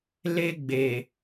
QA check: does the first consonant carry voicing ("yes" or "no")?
yes